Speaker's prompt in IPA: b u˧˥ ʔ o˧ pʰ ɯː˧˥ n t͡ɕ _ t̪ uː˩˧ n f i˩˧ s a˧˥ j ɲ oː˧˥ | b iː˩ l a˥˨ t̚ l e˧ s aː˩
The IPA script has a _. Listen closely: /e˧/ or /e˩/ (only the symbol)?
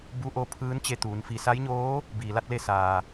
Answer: e˧